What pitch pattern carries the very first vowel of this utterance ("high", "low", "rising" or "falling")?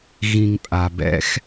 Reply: low